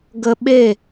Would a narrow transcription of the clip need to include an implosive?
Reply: yes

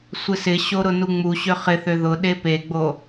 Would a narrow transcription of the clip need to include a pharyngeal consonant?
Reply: no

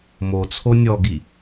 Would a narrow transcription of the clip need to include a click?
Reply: no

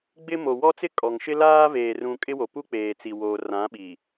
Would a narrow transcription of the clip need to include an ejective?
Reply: yes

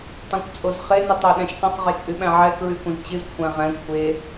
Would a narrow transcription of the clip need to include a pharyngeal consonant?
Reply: yes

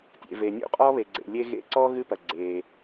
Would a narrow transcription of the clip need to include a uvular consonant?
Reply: yes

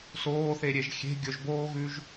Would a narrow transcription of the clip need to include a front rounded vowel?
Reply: no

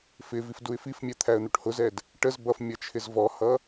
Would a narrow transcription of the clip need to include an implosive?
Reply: no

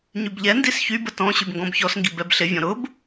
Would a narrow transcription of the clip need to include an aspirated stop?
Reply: no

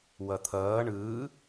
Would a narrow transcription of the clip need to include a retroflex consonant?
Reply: yes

